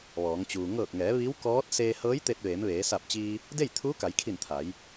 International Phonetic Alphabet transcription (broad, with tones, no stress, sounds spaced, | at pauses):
ʋ ɔː˩˧ ŋ t͡ɕ uː˩ ŋ ɤː˧˩ k̚ ŋ ɛː˩˧ ʋ i˧˥ w k ɔː˧˥ t̚ s eː˧ h ɤː˧˥ j t̪ e˧ t̚ ʋ eː˩˧ m ʋ eː˩˧ s a˧˩ p̚ t͡ɕ iː˧ | d e˥˨ j t̪ʰ uː˧˥ k a˩˧ j kʰ i˧˩ n t̪ʰ a˩˧ j